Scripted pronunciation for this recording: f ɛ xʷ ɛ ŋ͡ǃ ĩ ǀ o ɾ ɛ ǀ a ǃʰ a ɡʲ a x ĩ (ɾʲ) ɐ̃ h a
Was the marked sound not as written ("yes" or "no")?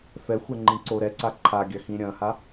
no